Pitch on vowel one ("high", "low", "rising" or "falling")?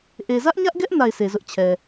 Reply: low